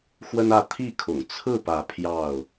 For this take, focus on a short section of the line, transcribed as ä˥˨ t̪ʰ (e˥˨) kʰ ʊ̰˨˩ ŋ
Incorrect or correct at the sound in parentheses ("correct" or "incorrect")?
incorrect